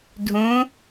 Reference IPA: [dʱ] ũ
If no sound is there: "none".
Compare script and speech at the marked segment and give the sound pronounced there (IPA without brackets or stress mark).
dʱ